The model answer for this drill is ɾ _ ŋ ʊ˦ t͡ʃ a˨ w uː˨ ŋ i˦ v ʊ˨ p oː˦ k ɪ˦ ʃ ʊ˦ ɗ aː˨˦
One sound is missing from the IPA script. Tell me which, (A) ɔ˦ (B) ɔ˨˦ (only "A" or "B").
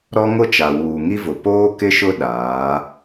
A